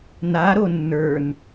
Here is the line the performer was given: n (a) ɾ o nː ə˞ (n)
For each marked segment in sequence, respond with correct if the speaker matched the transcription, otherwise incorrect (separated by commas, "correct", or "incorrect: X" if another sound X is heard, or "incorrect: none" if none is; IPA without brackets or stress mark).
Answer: correct, correct